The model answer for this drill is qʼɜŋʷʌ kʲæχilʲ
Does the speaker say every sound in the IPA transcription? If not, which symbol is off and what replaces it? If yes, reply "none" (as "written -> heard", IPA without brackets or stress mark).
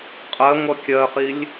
æ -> ɜ